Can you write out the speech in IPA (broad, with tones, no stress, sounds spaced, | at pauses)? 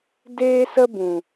d eː˧ s ə˧ b ũ˨